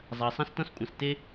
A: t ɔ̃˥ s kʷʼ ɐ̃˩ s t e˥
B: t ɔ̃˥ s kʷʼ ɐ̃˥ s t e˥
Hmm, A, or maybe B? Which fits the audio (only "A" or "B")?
A